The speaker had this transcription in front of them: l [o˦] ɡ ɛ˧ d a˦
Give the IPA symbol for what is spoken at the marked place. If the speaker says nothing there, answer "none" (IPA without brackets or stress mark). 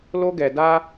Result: o˦